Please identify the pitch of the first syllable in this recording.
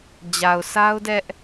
low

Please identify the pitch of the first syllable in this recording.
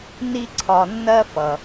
high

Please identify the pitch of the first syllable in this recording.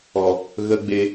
low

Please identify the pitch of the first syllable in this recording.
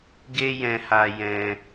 high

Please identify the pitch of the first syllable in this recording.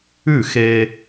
falling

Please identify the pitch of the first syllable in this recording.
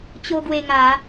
high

